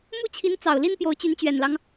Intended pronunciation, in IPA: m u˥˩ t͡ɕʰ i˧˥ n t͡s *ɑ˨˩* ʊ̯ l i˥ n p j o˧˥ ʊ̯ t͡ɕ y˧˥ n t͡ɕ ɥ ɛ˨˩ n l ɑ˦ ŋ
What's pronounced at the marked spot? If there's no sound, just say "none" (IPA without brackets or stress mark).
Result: ɑ˨˩